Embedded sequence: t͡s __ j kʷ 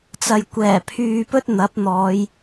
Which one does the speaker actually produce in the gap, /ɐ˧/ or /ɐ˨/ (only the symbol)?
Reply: ɐ˨